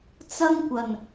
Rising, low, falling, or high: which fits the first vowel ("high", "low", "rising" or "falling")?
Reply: high